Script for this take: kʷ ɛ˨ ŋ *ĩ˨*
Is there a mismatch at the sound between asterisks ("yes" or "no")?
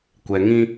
yes